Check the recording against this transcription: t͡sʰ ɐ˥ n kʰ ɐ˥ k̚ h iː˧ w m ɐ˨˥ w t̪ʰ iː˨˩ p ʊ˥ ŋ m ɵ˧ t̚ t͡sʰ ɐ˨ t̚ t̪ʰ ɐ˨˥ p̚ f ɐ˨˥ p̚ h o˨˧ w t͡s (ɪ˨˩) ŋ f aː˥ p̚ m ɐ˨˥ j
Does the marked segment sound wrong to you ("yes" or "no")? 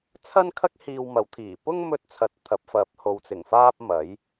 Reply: no